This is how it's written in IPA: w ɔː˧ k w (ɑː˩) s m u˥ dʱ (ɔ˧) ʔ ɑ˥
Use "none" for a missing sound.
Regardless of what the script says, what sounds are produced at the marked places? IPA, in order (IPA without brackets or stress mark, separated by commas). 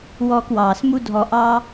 ɑː˩, ɔ˧